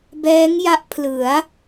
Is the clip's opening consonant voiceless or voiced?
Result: voiced